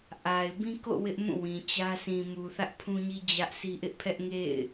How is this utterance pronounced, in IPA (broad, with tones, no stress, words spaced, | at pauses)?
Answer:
ʔa˨ɪ̯ bĩ˦ko̰˦˨ wɪ˦ʔmũ˦˨ wĩ˨t͡ɕä˦ sĩ˨mu˨ θä˦ʔpʰũ˦ɲi˦ d͡ʑä˦ʔsʰi˦ ʔɪ˦ʔpʰɛ˦ʔŋḛ˦˨ɪ̯